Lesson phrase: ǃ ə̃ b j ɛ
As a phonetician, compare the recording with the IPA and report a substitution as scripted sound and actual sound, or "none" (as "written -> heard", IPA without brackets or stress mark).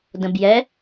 ǃ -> d